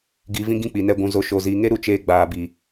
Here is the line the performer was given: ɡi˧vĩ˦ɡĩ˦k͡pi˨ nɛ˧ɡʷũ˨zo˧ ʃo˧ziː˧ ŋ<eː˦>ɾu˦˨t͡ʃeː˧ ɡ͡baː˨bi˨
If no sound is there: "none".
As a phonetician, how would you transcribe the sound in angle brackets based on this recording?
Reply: e˦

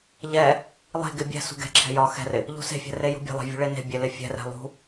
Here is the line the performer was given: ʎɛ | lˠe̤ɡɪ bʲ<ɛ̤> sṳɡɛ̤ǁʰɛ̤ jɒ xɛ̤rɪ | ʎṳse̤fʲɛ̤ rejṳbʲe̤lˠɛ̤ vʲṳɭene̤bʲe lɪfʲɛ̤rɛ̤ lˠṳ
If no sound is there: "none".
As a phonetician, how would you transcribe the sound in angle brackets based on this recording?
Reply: ɛ̤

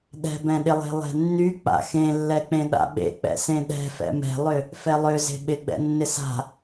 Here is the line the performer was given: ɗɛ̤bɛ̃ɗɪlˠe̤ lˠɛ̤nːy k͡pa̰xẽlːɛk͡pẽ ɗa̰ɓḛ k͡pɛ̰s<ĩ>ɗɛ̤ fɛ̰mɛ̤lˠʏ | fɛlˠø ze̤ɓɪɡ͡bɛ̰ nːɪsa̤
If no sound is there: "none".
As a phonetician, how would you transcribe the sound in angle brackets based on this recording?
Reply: ẽ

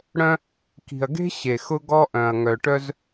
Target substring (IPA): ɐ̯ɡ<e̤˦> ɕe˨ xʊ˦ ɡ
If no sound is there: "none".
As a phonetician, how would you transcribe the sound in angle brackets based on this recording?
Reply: e̤˦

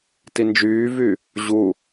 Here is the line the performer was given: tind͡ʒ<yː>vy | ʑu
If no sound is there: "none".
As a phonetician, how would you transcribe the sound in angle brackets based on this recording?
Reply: yː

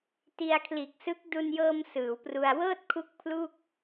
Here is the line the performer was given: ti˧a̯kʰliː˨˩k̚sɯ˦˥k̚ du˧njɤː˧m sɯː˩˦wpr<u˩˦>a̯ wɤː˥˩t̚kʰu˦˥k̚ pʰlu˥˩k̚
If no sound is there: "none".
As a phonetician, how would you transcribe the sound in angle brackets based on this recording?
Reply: u˧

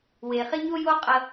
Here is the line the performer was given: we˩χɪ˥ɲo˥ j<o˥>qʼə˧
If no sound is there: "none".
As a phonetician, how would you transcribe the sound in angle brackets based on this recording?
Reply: o˥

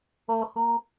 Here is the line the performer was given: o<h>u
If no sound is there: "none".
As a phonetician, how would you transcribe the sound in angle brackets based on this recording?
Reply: h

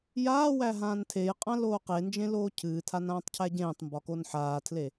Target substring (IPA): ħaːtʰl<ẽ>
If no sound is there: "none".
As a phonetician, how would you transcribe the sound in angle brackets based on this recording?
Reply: e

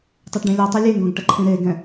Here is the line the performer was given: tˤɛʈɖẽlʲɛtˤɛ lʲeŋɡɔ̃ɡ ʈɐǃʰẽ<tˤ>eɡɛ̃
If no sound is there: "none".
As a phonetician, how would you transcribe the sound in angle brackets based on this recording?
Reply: ɾ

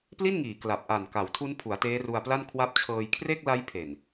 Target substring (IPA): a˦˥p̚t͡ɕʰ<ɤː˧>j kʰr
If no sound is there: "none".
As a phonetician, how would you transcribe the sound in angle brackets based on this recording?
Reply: ɤː˧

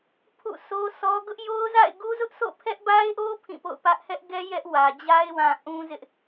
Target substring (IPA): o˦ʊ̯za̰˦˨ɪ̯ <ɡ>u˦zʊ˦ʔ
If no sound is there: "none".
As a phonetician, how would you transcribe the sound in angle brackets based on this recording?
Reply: ɡ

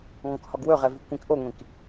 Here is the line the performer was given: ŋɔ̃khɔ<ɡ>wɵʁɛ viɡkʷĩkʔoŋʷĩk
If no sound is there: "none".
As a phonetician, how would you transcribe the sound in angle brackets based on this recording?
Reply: ɡ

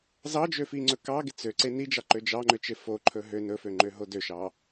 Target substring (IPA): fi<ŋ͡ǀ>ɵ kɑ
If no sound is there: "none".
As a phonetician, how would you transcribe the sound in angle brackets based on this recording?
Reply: ŋ͡ǀ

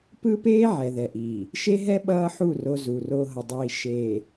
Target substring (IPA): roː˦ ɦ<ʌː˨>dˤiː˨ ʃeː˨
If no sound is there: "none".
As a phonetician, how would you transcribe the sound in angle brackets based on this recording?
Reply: ʌ˨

